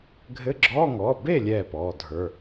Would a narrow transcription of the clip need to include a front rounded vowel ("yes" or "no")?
no